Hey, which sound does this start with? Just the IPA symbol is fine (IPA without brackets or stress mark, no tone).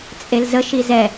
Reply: t͡sʼ